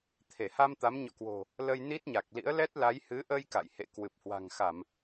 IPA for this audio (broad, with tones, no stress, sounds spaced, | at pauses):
t̪ʰ e˧˩ h a˧ m t̪ a˨˦ m ɲ ɔ̰˧˨ k w o̤˨˩ | l ə˧ j n i˦˥ t̚ ɲ a˨˩ k̚ l ḭ˧˥ ə̯ l ɛ˦˥ t̚ l a˨˦ j h ɨ˨˦ ʔ ə˧ j k a̰˧˨ j h ḛ˧˨ k w ɨ˨˩ p̚ h w a̤˨˩ ŋ x a˧˩˨ m